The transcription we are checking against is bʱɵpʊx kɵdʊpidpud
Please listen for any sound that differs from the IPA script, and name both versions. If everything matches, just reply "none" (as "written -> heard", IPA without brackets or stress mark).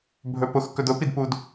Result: none